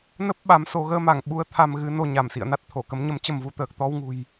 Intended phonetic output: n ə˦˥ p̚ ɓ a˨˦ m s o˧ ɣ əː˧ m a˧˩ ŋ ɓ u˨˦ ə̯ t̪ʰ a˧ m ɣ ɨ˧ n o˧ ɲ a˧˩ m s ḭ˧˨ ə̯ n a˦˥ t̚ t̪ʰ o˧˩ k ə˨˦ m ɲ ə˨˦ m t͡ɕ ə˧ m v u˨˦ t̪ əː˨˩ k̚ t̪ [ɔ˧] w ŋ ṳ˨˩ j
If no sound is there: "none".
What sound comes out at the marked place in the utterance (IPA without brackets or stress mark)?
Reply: ɔ˧